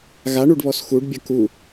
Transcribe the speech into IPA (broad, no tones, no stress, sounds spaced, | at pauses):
ɣ a ɳ u ɖ β ɔ s x u ɖ bʲ ɐ k u